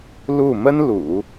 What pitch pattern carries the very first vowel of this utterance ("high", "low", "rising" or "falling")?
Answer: falling